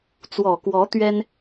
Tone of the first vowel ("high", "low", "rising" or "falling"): low